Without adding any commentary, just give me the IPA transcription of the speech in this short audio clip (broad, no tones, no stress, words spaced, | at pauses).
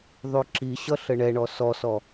ðˤyǁiɕʌ ɬəɳɛɳɔ sɔsɔ